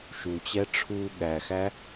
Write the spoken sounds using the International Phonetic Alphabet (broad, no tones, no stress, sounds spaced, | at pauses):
ʃ u t͡ɕ ɛ ʈ͡ʂʰ u ɠ æ x æ